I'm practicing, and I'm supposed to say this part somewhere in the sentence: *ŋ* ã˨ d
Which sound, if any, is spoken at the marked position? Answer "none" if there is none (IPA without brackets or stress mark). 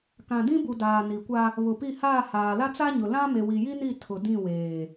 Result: k